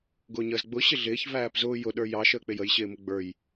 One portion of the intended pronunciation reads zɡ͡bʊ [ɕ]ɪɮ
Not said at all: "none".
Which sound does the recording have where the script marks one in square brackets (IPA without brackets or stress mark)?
ɕ